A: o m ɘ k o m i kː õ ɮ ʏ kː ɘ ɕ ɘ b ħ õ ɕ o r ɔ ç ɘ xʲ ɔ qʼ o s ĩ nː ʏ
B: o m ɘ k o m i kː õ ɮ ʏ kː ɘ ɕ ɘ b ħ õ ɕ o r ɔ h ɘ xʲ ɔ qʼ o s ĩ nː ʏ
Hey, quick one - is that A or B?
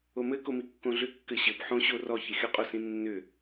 A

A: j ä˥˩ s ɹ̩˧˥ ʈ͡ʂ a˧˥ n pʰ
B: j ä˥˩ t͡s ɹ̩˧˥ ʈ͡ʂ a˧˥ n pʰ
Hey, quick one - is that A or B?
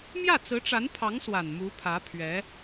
B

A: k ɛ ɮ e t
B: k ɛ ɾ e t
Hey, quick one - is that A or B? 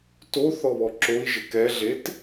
A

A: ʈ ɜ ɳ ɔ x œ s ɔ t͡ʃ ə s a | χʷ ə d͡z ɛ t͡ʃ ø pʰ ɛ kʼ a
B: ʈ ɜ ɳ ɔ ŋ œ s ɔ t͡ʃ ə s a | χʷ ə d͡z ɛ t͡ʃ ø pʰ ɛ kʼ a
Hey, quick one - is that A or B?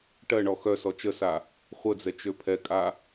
A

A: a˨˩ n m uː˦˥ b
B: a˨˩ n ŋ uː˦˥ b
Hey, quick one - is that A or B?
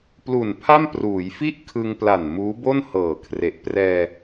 A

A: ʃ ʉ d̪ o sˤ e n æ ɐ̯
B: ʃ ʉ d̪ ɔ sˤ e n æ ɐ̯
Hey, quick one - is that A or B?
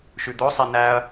A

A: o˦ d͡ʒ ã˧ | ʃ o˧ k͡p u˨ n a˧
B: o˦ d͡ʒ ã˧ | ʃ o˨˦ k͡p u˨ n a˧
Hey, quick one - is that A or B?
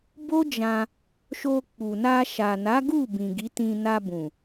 A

